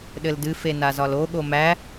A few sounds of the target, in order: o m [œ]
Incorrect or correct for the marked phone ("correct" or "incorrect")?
incorrect